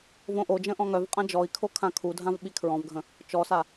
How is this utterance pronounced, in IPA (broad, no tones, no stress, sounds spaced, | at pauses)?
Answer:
v õ ʔ o d͡ʒ ə̃ ʔ ɔ̃ ŋ œ v qʼ ã d͡ʒ ɔ i̯ kʰ o kʰ ã kʰ u dʱ ã v ɓ i kʰ ɹ ɔ̃ v ɡʱ ə̃ | t͡ʃ ɔ s a